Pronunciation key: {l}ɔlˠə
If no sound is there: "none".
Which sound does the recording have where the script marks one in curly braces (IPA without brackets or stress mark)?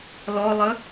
l